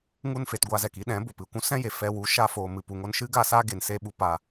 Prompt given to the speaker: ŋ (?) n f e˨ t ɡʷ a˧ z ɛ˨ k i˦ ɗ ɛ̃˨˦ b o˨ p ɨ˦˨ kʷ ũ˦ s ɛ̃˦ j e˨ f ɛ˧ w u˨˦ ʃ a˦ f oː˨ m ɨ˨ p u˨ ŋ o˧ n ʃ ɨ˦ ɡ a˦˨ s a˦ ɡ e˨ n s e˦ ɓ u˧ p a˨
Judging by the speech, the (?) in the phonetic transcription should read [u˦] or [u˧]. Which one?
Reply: u˦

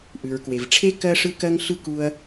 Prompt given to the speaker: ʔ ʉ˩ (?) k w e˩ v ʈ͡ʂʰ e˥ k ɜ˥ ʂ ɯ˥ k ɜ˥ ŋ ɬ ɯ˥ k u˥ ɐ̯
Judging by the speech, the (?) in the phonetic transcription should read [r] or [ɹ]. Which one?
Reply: ɹ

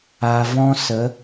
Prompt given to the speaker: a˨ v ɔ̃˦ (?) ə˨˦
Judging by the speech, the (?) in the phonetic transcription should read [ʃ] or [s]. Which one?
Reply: s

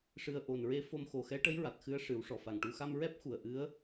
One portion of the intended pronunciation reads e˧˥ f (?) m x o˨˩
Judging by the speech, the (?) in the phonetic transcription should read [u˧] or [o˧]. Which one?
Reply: o˧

